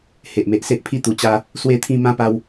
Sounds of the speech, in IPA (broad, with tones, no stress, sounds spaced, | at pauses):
h e˨ ʔ m e˨ ʔ s e˦ ʔ pʰ i˥˧ t̪ u˨˩ t͡ɕ a˧ | s w e˥˧ t̪ʰ ĩ˥˧ m ã˦ p a˧ w